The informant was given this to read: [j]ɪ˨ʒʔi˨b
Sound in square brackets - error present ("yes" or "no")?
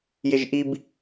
no